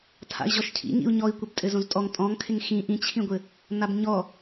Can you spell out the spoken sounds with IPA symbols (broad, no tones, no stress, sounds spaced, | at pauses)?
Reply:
tʰ a̰ i̯ ʑ ɔ ʃ cʰ ḭ ŋ ḭ u̯ ɲ ɔ i̯ kʷ ɘ b tʼ ɘ z õ z tʼ ɔ ŋ tʼ ɔ̃ ŋ kʰ ɪ ŋ x ĩ ʔ ĩ t͡ɕʰ ĩ ɡʷ ɘ | n a b ɲ ɔ